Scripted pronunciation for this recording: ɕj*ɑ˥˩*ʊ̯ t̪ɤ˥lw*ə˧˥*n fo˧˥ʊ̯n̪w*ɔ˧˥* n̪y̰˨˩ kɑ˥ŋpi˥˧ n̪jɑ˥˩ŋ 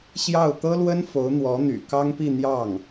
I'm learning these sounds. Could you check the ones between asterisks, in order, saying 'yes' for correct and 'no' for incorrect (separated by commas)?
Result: yes, no, yes